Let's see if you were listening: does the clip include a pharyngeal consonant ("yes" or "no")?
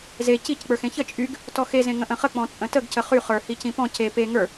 no